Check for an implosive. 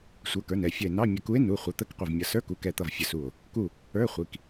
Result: absent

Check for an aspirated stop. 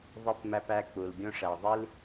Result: absent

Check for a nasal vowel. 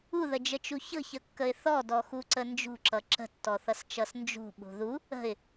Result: absent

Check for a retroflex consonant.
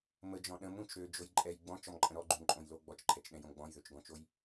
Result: absent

